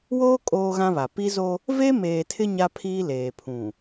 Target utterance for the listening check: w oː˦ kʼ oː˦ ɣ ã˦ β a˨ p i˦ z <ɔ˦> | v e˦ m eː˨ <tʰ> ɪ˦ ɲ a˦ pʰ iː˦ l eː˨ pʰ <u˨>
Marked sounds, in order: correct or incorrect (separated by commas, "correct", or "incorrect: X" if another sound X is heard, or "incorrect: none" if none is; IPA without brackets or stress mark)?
incorrect: o˦, correct, incorrect: ũ˨